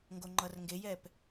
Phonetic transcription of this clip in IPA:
ŋɡoŋ͡ǃʌrŋɡejɛp

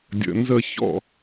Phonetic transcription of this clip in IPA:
dʲə̰˧nzə˥˧ çɔ̰˥˧

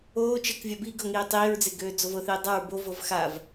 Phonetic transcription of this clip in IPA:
oː t͡ʃəkvʲa biːɡɤ ŋiːtˤiːɹd͡ze ɡøːd͡zovɤθiː dˤaɹ bovɤv xav

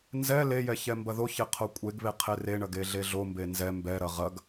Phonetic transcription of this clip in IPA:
nzɛ lejɛ çɛmbɐðoçe qʰokʷʼeɡβe qʰereɳɐɡ eɮeɮombe nzɛ mbɛɾɐ ʁɐɡ

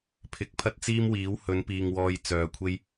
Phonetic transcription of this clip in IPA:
pʰɪ˨˥k̚pʰɐ˥t̚t͡siː˥mwiː˨˥w hɵ˨˧npiː˨ŋ wɔː˧jt͡sœː˨˧kʷʰe˥j

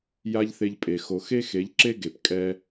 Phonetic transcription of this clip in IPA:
ja˦ʎθe˧ʎpʼe˨ xo˨ xe˦xe˨˦ʎǁe˦ ɡe˨p kʼɛ˦

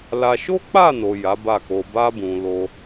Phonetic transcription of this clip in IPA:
la˧ ʃo˦k͡pa˦˨no˨ ja˨˦ba˦˨ko˧ ba˧bũ˨ lo˧

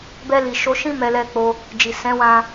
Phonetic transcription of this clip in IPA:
bɛ˧li˨ʃo˨˦ʃĩ˦ mɛ˧lɛ˧k͡po˧ | d͡ʒi˨sɛ̃˨˦wã˧

